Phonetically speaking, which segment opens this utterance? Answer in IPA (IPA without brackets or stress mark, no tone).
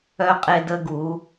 œ